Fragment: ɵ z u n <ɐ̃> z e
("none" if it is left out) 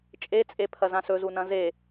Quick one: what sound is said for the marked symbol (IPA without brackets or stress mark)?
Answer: ɐ̃